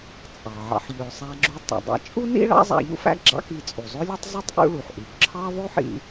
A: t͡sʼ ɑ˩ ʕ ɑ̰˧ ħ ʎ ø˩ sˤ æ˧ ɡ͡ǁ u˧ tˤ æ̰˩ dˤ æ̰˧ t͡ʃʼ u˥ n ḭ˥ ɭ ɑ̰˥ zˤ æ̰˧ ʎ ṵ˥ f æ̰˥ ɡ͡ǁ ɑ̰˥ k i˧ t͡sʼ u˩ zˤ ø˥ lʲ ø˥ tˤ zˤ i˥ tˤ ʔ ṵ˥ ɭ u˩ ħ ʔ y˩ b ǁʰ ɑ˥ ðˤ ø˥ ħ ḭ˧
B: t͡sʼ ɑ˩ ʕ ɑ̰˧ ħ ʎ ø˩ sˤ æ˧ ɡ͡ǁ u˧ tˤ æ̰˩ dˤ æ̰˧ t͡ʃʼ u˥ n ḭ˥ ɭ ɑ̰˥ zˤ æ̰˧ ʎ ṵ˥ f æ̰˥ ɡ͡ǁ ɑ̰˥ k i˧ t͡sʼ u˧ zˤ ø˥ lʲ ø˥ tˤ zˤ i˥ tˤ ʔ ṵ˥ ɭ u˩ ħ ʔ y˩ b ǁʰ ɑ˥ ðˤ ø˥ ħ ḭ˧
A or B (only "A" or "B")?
A